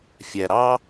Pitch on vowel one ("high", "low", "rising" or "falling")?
low